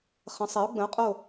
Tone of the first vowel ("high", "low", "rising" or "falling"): rising